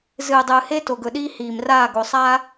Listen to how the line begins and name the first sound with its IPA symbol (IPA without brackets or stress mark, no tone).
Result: z